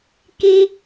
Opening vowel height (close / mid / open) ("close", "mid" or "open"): close